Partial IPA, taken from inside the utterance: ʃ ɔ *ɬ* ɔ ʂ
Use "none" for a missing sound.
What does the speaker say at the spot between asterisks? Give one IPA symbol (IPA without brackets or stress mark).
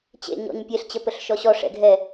ɕ